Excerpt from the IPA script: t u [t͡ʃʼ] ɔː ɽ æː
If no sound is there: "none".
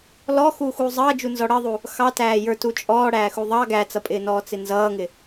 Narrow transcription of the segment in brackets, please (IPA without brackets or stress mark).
t͡ʃʼ